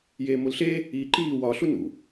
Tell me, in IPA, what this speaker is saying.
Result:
j eː m o l ɬ e | iː ǃ iː w ɒ ɬ u n ṵ

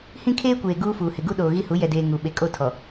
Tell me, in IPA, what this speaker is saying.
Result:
h ĩ˦ kʰ eː˦ kʷ eː˨ ɡ uː˦ f uː˨ h ɪ˨ ɡ u˦ ɗ oː˨ ɣ i˦ h u˨˦ j ɛ˨ d eː˨ ŋ u˨ ɓ e˨ kʼ o˦˨ tʰ ɔ˨

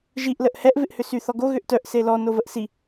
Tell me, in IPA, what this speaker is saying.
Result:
ʒ i ʔ l ə ʔ h ɛ ʔ v ɪ ʔ h ʏ s y θ ɔ ɡ o ɣ ʏ ʔ t œ ʔ s e l ɔ n o v ə ʔ s i

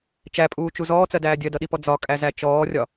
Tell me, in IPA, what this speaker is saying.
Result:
t͡ʃ æ pʼ uː t͡ʃ u z ɔː t͡s ɜ d æː dʲ ɜ d ʌ ɗ i p ɔ d͡z ɒ kʼ æ z æ t͡ʃ ɔː rʲ ɒ

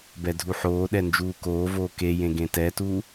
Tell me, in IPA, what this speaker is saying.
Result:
b ɛ dʱ u ħ oː ɗ ɛ n d͡ʒ uː k oː v oː k e j ẽ ɡ ẽ t ɛ t uː

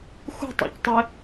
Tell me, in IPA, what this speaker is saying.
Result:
x ṳ tˤ ɑ̰ c tˤ e

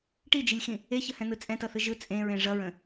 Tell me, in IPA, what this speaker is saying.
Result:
ʈ i d͡ʒ i lʲ x ĩ | e ç ə h ɛ̃ n̪ ɯ t͡sʼ ɛ̃ t ʌ θ ɯ ʒ ɯ t͡sʼ ẽ ɹ ẽ ʐ ʌ ɹ ə̃

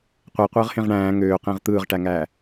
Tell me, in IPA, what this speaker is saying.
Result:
qʷ e qʷ ɯː ʁ h ẽ ʁ ɳ æ̃ː ŋ øː q ẽ ʁ t̪ ɯː ʁ ʈ æ ŋ æː

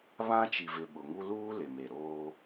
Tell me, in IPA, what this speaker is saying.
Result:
β ã˦ t͡ʃ i˨ v ɪ˨ ɓ ʊ˨ ŋ u˦ l uː˦ l ɪ˨ m e˨ ɾ oː˦

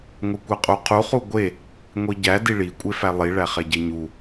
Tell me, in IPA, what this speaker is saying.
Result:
ŋʷ e kʷ æ qʼ u qʰ u χ u ɡʷ e | ŋʷ i ɟ æ d i ɭ i kʷʼ e f æ lˠ i ɭ æ χ e ɟ e ɲ u

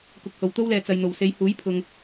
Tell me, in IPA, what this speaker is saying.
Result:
k ʊ˨ k̚ h o˨˩ w t̪ o˥ w l ɛː˨ t͡s ɐ˨ j n̪ o˨˩ w s e˨˧ j h uː˨˥ j pʰ ʊ˨ ŋ

